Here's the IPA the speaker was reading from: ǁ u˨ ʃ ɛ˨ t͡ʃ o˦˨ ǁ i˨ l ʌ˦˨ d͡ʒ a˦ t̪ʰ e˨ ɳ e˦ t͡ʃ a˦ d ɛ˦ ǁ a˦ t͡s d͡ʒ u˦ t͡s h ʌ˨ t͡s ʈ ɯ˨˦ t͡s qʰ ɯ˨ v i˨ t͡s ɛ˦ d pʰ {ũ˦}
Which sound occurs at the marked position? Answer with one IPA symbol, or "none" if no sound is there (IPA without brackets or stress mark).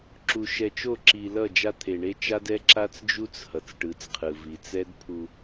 u˦